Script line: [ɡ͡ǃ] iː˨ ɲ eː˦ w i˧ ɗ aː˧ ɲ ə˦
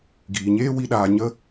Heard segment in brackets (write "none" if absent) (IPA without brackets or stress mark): ɡ